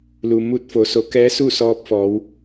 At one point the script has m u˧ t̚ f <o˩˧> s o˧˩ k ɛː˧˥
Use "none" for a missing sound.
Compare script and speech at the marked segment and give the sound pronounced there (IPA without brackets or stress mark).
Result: o˩˧